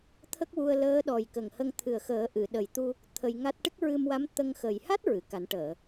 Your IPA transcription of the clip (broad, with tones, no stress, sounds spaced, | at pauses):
t̪ʰ ə˦˥ k̚ w u˧ ə̯ l əː˧˥ ɗ ɔ˨˩ j k ə˨˩ ŋ h ə˧ ŋ t̪ʰ ɨ˨˩ ə̯ x əː˨˩˦ ʔ ɨ˨˩˨ ɗ ə˨˩ j t̪ u˧ | t̪ʰ ə˧ j ŋ a˦˥ t̚ ʈ ɨ˦˥ k̚ ɹ ɨ˧ m w a˧˥ m t̪ ə˧ ŋ x ə˨˩ j h a˦˥ t̚ ɹ ɨ˨˩˨ k a˨˩˦ n ʈ əː˨˩˨